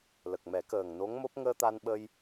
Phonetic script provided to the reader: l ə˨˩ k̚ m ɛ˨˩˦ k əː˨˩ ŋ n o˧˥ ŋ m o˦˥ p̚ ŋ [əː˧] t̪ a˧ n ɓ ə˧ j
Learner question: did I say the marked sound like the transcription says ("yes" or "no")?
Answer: yes